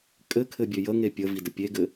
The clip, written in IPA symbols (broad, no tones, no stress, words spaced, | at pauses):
kʼɘkʰɘbʲø jə ŋepʲəvidə pʲeɡɘ